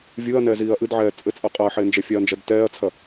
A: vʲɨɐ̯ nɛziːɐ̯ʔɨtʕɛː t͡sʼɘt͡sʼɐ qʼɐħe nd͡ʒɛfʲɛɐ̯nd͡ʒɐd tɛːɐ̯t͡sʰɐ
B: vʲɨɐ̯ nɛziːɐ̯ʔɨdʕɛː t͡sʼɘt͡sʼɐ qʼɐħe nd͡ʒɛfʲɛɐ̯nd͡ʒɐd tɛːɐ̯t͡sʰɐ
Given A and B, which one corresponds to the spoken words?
B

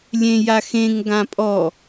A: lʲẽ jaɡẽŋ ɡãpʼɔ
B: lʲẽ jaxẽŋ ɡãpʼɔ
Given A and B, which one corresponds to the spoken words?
B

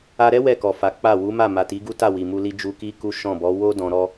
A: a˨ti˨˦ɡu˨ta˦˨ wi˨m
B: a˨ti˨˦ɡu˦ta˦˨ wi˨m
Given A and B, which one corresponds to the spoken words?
B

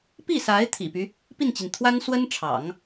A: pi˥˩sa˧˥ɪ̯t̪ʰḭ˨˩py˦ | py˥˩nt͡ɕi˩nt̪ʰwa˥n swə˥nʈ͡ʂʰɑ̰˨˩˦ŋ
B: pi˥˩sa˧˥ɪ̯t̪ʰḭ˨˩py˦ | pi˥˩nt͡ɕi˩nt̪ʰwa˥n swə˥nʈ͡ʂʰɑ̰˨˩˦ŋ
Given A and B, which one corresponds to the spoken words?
B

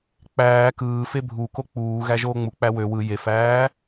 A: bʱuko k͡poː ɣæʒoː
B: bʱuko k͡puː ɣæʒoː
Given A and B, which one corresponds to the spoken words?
B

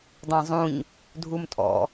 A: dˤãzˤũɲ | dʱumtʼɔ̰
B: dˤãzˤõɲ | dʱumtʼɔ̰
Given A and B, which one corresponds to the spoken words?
A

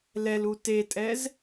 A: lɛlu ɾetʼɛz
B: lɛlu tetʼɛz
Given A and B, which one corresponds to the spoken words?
B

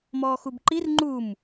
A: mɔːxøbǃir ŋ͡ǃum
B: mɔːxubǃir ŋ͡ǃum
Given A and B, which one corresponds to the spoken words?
B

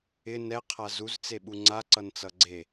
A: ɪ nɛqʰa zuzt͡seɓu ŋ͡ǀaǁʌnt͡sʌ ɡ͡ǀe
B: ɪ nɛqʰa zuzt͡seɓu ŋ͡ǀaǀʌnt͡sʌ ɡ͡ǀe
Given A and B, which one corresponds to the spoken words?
B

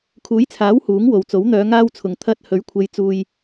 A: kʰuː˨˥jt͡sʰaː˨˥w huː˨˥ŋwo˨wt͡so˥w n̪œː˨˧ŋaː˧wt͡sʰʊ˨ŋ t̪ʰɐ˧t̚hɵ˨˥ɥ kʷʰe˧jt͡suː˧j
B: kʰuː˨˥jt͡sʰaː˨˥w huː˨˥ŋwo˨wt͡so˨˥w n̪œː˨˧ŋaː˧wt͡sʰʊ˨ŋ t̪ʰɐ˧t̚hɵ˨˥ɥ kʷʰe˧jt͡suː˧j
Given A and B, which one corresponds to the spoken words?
B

